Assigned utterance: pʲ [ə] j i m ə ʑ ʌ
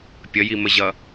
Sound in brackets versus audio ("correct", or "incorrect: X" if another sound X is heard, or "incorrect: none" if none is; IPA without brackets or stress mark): correct